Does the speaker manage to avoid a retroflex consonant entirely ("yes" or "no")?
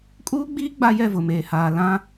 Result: yes